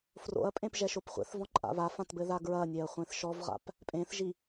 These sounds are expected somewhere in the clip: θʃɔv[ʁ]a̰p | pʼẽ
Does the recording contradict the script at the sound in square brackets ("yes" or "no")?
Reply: no